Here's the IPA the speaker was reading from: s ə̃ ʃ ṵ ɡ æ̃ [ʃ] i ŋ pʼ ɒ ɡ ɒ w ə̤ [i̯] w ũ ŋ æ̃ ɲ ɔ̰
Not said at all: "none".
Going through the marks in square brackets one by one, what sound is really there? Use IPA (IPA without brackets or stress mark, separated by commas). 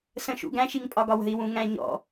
ʃ, i̯